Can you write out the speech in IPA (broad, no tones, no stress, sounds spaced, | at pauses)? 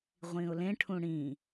ʁʷ ĩ ʊ̯ l ẽ ʈʰ ũ ɽ ĩ